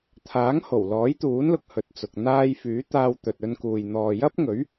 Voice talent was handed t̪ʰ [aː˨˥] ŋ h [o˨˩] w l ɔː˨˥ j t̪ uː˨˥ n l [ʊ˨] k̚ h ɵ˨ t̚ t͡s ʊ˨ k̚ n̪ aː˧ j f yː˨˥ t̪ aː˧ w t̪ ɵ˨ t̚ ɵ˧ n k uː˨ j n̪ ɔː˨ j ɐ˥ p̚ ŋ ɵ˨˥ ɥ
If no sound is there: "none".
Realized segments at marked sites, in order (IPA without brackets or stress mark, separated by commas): aː˨˥, o˨˩, ʊ˨